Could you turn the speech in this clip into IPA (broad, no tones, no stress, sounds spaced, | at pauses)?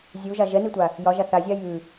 zʲ u ʒ a ʒ ɛ n i tʷ a | j ɒ ʒ a θ a zʲ a j ʉ